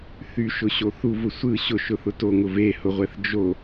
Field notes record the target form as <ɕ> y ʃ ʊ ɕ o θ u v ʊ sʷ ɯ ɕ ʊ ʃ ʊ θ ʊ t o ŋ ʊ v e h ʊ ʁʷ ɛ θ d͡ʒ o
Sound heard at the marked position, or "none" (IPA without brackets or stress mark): θ